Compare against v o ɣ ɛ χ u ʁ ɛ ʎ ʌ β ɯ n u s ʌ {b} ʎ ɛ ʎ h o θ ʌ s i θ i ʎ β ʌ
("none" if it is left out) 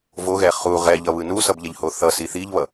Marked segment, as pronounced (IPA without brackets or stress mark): b